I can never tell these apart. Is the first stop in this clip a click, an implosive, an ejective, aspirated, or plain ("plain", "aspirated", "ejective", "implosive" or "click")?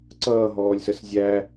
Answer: click